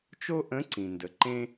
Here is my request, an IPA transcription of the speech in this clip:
t͡ʃ o˥ ʔ ə̃˧˥ ǀ ĩ˩ n d ə˩˧ ǃ ẽ˥

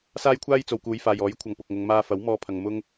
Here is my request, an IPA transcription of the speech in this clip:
s aː˥ j kʷʰ aː˥ j t͡s o˨ w k uː˨˧ j f aː˨ j ɔː˨˥ j kʷʰ ɐ˨ ŋ p ʊ˨ k̚ ŋ ʊ˨˧ ŋ m aː˧ f ɐ˨˥ w m ɔː˥ pʰ ɐ˧ ŋ m ʊ˥ ŋ

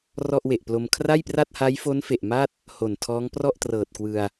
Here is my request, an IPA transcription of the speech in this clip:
r ɔ˥˩ ʔ w e˨˩ ʔ p l o˧ m kʰ r a˥˩ j p r a˥˩ t̚ h a˦˥ j f o˦˥ n f e˨˩ ʔ m a˥˩ t̚ | h o˨˩ n tʰ ɔː˦˥ ŋ p r ɔ˥˩ ʔ t r ɤː˨˩ t̚ k w ɯ˧ a̯

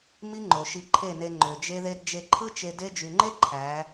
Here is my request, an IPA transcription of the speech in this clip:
m i˦ ŋ͡ǃ o˨ ʃ i˧ ǃʰ e˦˨ n e˧ ŋ͡ǃ ø˨ d͡ʒ e˦ ð e˦ d d͡ʒ e˧ ǃʰ ɯ˦ t͡ʃ e˧ d e˦ d͡ʒ y˨ ŋ͡ǃ e˦ ǃʰ æ˨˦

